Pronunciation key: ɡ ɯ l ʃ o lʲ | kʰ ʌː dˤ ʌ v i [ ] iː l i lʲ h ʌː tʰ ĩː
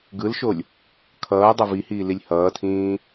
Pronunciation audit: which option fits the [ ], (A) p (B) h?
B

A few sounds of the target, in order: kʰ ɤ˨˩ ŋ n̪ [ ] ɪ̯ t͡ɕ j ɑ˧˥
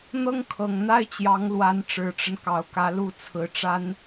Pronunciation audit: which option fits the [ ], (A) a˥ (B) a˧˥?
A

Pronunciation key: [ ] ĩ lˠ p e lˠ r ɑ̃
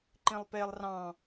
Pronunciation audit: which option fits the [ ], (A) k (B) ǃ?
B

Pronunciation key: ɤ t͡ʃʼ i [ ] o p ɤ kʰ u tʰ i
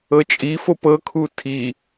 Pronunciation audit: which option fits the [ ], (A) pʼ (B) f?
B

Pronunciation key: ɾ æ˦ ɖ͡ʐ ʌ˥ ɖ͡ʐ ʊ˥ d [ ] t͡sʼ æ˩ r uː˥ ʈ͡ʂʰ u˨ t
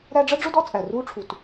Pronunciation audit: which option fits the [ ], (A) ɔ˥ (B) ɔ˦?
B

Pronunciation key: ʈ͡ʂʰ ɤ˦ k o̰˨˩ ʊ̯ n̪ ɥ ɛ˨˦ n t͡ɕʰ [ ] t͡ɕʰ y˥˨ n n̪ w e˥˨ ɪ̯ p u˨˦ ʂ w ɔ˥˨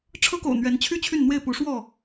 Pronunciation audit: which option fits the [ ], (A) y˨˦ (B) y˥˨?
B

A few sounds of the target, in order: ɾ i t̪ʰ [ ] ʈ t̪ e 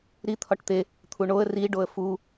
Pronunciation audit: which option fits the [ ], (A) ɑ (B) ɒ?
B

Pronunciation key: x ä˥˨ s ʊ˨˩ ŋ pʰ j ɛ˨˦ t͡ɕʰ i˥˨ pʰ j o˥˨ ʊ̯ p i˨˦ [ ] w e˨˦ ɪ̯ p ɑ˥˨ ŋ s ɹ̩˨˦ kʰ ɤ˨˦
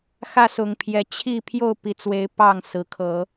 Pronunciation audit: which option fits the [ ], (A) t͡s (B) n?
A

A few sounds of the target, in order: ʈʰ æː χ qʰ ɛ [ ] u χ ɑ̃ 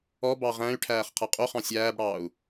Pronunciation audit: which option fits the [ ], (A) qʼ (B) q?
A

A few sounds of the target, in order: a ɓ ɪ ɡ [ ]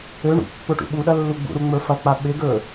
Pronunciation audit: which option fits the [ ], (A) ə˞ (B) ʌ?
A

